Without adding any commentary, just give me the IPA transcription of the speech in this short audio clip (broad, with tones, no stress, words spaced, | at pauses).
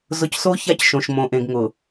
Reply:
zʊ˨cso˦ ça˦cʃõ˨ʃ mõ˨ ʔẽ˨ɡŋʊ˨